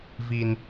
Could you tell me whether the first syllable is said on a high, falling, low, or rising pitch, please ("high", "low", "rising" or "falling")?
high